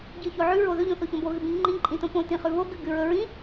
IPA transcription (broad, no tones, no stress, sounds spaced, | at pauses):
ɟ ɨ ç o ʕ ʉ ɹ o ð ɵ ʎ õ θ o ç õ b o ɣ ɨ b ĩ ŋ͡ǃ ĩ ǃʼ ĩ t õ p õ t ĩ χ ʉ β o ɡ ɨ ɡ ɨ ɹ ɵ ɹ ĩ